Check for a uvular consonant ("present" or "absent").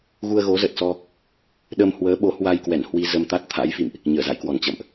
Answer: absent